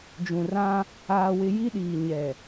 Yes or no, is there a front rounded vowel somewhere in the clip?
no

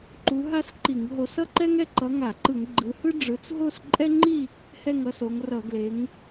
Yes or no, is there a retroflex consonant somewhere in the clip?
yes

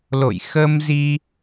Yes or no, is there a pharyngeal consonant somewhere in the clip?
no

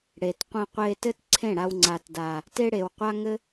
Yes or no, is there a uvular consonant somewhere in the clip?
yes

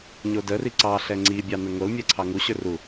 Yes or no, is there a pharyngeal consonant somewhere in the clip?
no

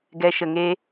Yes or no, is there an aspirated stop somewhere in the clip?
no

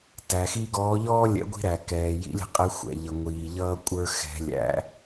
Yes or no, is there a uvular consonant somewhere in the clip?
yes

